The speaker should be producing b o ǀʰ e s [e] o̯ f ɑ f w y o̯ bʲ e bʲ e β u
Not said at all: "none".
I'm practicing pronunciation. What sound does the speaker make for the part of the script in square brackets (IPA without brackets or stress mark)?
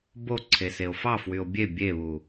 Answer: e